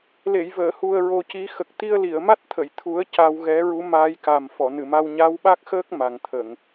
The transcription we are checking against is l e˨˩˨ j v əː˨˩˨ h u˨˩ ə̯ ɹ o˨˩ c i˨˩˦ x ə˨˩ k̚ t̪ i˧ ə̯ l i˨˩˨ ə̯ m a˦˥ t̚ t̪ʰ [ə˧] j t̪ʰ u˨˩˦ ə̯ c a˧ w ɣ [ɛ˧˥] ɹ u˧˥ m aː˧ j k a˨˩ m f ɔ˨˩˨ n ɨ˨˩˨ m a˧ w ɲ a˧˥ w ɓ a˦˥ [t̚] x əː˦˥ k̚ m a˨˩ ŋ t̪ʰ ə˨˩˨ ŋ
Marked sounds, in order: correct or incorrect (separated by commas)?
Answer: incorrect, correct, incorrect